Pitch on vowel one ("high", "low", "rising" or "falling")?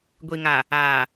low